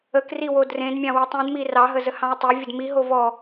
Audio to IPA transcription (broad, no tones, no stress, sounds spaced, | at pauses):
ə k r i w o d r ẽ d mʲ ɑ̃ w i tˤ ĩ d m i r ɑ ɦ ə z ə h ɑ̃ ə̯ tˤ e vʲ ə d m i ɦ o v ɔ